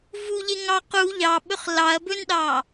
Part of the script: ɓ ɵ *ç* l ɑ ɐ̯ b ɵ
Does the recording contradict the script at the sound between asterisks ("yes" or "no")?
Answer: yes